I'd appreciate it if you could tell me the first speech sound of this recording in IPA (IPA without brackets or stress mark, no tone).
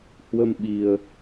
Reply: h